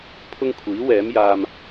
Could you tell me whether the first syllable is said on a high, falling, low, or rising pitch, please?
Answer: high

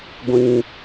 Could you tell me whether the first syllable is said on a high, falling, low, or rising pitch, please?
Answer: low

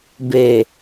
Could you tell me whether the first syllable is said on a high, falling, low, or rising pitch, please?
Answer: low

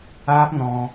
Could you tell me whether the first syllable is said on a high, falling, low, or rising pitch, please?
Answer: high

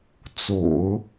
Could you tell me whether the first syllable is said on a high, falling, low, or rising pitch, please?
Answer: low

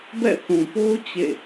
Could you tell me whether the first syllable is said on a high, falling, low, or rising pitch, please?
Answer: falling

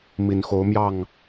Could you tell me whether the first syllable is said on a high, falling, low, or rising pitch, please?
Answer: low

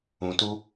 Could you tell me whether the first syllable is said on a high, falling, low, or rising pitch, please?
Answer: low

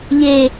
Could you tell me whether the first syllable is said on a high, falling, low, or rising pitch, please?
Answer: low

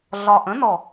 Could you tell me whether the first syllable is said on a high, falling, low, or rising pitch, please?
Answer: low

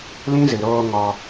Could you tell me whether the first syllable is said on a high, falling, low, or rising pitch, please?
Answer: high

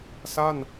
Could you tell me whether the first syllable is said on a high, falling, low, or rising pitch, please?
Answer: falling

